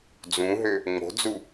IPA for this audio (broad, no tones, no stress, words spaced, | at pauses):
d͡zũɦø | ŋ͡mo̤d͡zu